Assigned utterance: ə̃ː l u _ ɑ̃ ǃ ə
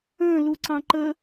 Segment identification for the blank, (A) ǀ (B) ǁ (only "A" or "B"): A